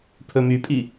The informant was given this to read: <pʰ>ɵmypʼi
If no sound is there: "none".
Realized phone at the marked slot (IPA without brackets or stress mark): pʰ